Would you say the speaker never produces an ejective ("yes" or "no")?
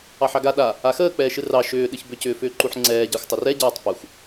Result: yes